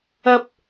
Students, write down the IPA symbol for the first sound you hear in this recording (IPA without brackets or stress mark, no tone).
ɐ